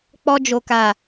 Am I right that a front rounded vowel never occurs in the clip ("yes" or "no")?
yes